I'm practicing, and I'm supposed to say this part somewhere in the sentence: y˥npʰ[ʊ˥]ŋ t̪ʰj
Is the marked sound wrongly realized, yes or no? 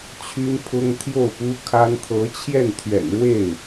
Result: no